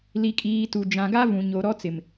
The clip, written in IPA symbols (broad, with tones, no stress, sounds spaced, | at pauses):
l i˨ kʼ iː˨ t u˨ d͡ʒ ã˨ ɡ a˦ v ũ˨ ɲ o˨ ɾ ɔ˦ t͡s ɪ˨ m